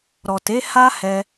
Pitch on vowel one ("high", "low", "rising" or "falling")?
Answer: low